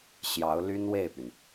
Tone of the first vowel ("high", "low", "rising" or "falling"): rising